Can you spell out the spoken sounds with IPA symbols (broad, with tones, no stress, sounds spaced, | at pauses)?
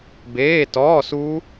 b eː˧˥˧ t ɔː˧˥˧ s u˦˥